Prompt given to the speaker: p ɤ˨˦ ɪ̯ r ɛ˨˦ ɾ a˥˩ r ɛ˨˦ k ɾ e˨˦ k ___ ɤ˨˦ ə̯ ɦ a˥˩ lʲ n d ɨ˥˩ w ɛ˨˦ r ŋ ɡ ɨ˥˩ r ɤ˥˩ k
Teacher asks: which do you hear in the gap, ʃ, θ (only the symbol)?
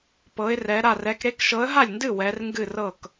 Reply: ʃ